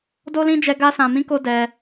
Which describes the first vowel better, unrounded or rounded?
rounded